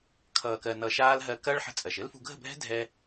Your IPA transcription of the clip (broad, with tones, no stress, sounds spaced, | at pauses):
kʰ ʌː˨ k ɜ˨ n ʌ˧ ʃ aː˦ l ɦ ɜ˧ k ɐː˦ ɭ ħ ə̤˦ t͡sʼ ɜ˨ ʃ ɘ˦ l f ṳ˧ ɡʱ ə̤˦˨ bʱ ɛ̤˦ dʱ ɛ˦